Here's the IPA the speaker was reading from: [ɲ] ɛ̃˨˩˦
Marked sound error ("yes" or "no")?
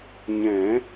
no